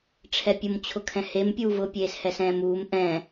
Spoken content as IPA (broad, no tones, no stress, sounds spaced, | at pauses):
ʈ͡ʂʰ ɛ pʲ ʊ m t͡ɕʰ ʊ kʰ ɛ̃ h e m pʲ uː v ʊ pʲ eː s h ɛ s ɛ̃ː m uː m ʔ ɛ̃